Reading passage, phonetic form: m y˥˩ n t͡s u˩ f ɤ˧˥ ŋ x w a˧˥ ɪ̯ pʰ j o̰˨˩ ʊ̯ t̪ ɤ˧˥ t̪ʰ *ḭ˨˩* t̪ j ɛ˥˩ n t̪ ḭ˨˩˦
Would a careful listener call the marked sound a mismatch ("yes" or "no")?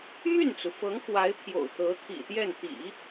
no